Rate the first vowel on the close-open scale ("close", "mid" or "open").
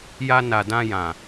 open